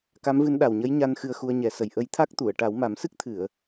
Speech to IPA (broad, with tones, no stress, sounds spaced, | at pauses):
k a˧˥ m v ɨ˧˥ n ɗ a˨˩ w ɲ ə˧˥ j ɲ a˧ n x ɨ˧ ə̯ x u˧ ə̯ ɲ ɛ˨˩˦ s ə˨˩ j ʔ ə˧˥ j t̪ʰ a˦˥ k̚ t̪ u˨˩˨ ə̯ ʈ a˨˩˦ w m a˨˩˦ m s ɨ˦˥ k̚ t̪ʰ ɨ˨˩˨ ə̯